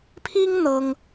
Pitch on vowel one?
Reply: high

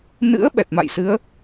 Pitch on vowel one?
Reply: rising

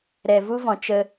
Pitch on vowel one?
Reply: low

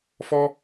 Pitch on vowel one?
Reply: high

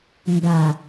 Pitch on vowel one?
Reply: low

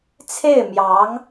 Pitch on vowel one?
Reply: falling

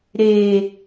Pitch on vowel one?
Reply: low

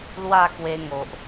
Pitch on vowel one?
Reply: falling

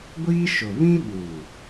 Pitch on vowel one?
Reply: high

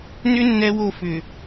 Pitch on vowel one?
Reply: high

